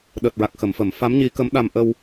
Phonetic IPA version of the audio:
ɗ əː˨˩ t̚ ɹ a˨˩ k̚ x ə˨˩˦ m f ə˨˩˦ m f a˧˥ m ɲ i˧˥ k ə˧˥ m ɗ a˧ m ʔ ə˧ w

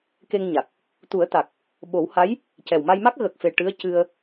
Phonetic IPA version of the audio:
k e˧ ŋ ɲ a˨˩ k̚ | t̪ u˨˩˦ ə̯ t̪ a˨˩ k̚ | ɓ o˨˩˦ w h a˧˥ j | c ɛ˨˩ w m a˧ j m a˦˥ k̚ ɣ ə˨˩ k̚ f e˨˩ ʈ ɨ˧˥ ə̯ c ɨ˧ ə̯

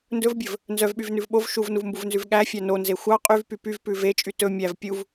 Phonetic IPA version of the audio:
n d ɵ v bʲ ɵ v | n z œ v ɓ y v n ʉ v ɓ o v ʃ u v n u v m b u v n z ʉ v ɠ æ fʲ æ n o n z e xʷ ɑ qʼ y v p y p y v p ʉ v e t͡ʃʼ y t ɵ mʲ æ v pʲ u v

